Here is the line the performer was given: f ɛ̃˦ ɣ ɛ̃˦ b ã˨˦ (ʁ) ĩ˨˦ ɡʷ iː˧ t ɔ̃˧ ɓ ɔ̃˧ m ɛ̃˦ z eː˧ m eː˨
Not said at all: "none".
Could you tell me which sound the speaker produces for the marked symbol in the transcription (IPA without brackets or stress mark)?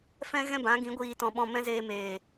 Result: ɡ